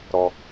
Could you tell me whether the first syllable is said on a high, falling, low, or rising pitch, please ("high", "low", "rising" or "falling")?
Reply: low